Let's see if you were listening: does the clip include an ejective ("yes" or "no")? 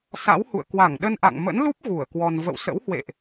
no